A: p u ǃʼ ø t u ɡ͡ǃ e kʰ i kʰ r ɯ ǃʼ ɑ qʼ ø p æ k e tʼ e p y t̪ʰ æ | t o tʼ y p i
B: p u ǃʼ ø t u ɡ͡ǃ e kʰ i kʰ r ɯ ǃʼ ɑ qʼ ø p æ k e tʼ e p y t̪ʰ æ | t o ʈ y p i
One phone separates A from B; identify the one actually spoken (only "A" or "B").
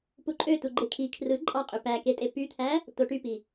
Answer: B